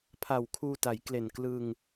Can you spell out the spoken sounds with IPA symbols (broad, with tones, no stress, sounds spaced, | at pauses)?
pʰ a˨˩ w kʰ uː˧ t a˩˦ j k l e˨˩ n k l ɯ˧ ŋ